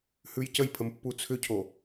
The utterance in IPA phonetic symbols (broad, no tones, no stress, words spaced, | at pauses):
hʉjcəjpʰəm pːut͡sʰʏcʰo